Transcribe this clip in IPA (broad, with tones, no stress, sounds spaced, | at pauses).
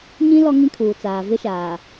ɲ ĩ˦ l ɔ˦ ŋ ĩ˦ kʰ uː˨ t͡s aː˨ v ɪ˦ ʃ aː˨